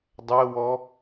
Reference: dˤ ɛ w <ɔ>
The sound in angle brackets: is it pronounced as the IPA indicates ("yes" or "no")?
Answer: yes